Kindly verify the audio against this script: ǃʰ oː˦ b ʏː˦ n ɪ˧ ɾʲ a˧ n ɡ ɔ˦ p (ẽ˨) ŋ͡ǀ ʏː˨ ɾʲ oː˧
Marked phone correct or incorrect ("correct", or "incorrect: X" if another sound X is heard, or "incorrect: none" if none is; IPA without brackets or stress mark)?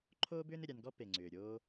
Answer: incorrect: e˨